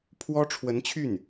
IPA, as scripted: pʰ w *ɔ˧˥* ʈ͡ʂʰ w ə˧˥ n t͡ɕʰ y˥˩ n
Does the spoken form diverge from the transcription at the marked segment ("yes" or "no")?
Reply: yes